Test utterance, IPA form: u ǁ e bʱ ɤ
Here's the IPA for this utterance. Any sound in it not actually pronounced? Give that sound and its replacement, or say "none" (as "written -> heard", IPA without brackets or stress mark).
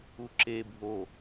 ɤ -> o